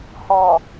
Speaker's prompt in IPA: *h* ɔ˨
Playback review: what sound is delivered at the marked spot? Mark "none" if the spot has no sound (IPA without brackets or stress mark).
h